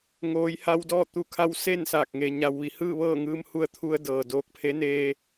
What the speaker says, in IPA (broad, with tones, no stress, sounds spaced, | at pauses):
ŋ oː˩˧ j h a˧ w d ɔː˥˨ t̪ u˧˩ kʰ a˧ w s e˥˨ n s aː˧˩ k̚ ŋ e˩ ɲ a˩ w ʋ i˩ h ɯː˥˨ ʋ ɤː˥˨ ŋ ɯː˧ m h u˧ ə̯ t̪ʰ u˧ ə̯ d ɤː˩ d oː˧ k̚ pʰ e˧˥ n eː˧